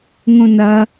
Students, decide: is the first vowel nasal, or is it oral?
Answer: nasal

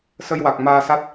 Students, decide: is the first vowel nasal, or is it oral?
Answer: oral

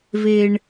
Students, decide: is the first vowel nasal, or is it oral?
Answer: oral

